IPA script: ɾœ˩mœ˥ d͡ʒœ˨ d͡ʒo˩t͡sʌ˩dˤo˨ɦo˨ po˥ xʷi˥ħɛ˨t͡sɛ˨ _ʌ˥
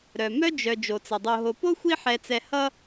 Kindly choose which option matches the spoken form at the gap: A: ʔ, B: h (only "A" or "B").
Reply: B